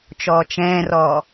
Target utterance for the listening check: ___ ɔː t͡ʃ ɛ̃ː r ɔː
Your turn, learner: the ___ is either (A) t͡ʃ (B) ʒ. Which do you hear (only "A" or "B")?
A